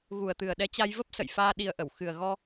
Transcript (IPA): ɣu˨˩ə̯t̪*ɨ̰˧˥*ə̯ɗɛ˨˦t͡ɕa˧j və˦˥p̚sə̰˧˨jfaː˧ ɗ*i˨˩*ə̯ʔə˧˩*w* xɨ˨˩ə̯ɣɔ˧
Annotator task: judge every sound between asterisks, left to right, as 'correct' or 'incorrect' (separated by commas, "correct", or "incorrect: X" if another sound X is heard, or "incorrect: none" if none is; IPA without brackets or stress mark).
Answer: incorrect: ɨ˨˩, correct, correct